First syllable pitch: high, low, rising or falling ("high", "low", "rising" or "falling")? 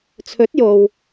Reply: rising